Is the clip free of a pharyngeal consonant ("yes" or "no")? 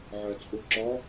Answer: no